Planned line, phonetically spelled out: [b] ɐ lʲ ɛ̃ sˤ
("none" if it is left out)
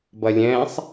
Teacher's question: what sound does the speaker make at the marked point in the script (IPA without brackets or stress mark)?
b